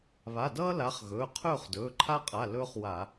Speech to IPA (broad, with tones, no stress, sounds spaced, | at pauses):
β a˩˧˩ d ʌː˥ l a˨˥ χ ɣ ɵː˩˧˩ qʰ ɵː˥˨ χ d ɵː˩˧˩ ǃʰ a˥ qʼ a˩˧˩ l ɵː˥ χ w a˧˩˧